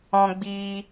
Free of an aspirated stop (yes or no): yes